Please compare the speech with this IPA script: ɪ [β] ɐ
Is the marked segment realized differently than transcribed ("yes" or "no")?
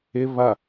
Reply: no